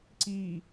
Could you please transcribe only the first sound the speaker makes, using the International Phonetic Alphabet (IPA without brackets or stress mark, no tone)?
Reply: ǀ